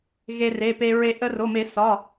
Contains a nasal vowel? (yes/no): no